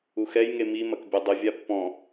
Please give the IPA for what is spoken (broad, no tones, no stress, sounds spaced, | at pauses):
u x ɛ j ŋ e m i m ɐ k bʲ ɛ dˤ ɨ vʲ a pː ɔ̃